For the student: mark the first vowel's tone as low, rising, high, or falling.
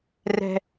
high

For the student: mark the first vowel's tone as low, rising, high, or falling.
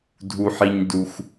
low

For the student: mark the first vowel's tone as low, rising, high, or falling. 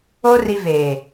high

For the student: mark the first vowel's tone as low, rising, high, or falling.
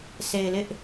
low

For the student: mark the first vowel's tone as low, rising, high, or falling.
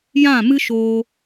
falling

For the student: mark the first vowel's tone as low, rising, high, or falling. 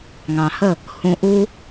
low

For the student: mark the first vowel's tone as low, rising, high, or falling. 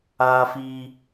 high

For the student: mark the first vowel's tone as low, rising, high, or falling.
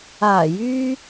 low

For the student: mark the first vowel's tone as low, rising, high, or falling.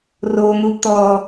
low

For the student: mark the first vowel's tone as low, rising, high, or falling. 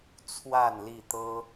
falling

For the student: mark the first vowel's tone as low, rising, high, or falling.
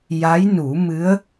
rising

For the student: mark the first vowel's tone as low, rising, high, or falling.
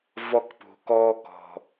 high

